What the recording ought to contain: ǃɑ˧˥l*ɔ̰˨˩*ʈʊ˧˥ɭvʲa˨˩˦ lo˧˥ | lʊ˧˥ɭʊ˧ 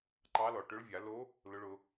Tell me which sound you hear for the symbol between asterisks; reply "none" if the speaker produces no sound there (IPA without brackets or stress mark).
ɔ˨˩